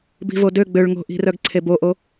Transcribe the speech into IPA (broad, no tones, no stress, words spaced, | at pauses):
bi̤vodø ɡ͡bøɭŋo̤ʔi̤rœɡ ǀʰeboʔo